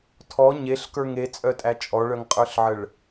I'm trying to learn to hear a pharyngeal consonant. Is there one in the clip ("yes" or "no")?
yes